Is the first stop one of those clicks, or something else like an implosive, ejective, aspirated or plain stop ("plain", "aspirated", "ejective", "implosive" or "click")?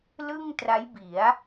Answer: plain